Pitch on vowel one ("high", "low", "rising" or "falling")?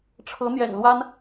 rising